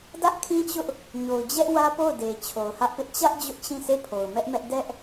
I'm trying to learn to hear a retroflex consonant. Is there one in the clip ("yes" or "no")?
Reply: no